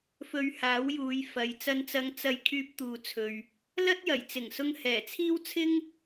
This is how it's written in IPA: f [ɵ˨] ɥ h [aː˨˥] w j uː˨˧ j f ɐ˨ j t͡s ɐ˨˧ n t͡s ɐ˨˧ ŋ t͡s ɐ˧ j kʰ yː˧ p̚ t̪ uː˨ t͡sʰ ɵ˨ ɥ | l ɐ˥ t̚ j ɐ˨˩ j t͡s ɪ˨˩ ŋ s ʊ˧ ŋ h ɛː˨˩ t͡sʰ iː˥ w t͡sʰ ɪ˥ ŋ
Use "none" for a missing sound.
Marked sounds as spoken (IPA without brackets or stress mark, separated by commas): ɵ˧, aː˨˥